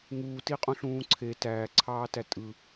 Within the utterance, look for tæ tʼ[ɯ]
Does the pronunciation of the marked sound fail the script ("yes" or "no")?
no